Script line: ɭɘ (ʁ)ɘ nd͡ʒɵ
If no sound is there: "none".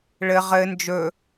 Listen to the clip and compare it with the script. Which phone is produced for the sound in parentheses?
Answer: ʁ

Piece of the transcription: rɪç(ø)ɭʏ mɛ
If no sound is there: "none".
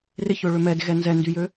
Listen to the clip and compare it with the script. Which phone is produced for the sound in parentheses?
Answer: ø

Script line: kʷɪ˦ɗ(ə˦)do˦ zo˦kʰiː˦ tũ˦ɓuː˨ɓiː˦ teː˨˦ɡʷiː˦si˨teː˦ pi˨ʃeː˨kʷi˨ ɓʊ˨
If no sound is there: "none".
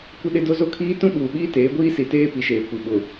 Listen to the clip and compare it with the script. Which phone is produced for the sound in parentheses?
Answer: ɪ˦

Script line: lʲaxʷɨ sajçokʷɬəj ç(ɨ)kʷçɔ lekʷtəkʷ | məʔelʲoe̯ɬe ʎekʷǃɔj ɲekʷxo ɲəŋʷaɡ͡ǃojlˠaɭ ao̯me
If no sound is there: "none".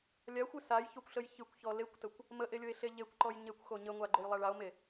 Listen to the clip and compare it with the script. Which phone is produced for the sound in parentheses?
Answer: ɨ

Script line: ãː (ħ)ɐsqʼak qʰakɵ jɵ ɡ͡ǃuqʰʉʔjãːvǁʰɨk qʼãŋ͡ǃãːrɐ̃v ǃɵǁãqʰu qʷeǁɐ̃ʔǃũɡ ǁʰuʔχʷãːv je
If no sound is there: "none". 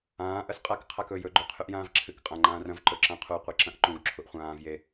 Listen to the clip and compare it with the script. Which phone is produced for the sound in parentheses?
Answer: ʔ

